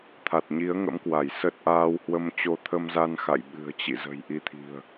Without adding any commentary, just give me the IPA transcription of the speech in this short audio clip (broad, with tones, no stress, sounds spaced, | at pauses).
t̪ʰ a˨˩ t̚ ɲ i˨˦ ə̯ ŋ ə̰˧˥ m k w a˧˩ j s ə˦˥ t̚ ʔ aː˧ w h w ə˧ m t͡ɕ o˧ t̪ʰ ə˧ m z a˧ n x a̰˧˨ j ɓ ɨ̤˨˩ ə̯ t͡ɕ ḭ˧˨ z ə̤˨˩ j ʔ i˨˦ t̪ʰ i̤˨˩ ə̯